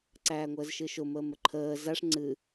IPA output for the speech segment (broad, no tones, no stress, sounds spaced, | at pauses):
ǀ æː ŋʷ əː z ʃ ɨː ʃ ʊ m əː m ə ǃʰ əː z a ʂ ŋ͡ǀ ɨ